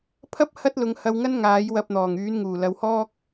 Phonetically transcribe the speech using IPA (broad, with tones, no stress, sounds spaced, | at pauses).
pʰ ɐ˥ p̚ h ɐ˥ t̚ l ʊ˨˧ ŋ h ɐ˧ w ŋ ɐ˥ n ŋ aː˨˥ j w ɐ˧ p̚ n̪ ɔː˨˩ ŋ yː˨˥ n ŋ uː˨˩ l ɐ˨˧ w h ɔː˥ k̚